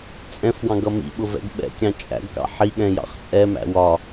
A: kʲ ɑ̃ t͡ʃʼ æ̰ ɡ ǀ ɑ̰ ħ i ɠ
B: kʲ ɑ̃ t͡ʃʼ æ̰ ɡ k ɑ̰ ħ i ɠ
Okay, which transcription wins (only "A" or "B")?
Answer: B